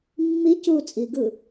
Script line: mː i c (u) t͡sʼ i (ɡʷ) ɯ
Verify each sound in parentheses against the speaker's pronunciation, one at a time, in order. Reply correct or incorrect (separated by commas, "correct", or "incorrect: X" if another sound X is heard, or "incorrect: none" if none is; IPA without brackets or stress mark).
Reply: incorrect: uː, incorrect: ɡ